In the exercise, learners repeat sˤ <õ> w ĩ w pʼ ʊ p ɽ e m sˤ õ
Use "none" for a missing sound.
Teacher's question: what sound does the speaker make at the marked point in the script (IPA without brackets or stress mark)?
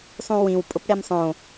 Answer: ũ